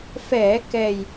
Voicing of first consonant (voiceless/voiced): voiceless